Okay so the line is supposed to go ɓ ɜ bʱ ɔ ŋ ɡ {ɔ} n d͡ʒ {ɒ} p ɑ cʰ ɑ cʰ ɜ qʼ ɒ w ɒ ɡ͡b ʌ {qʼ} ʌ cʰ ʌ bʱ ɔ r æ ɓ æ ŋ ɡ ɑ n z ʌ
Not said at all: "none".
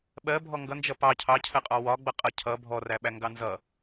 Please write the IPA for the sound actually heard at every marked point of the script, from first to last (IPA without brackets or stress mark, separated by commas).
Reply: ʌ, ʌ, qʼ